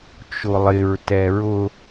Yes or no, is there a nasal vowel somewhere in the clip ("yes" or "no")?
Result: no